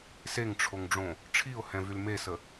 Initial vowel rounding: unrounded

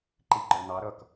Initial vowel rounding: unrounded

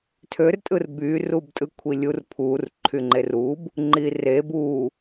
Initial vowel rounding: rounded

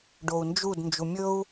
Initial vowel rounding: rounded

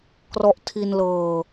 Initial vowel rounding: rounded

